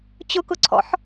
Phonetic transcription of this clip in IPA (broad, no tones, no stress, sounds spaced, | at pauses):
t͡ɕ ʊ k ʊ ǀʰ ɔ̰ ħ